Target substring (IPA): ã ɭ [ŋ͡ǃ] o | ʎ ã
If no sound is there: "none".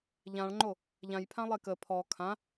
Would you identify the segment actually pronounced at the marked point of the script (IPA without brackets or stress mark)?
ŋ͡ǃ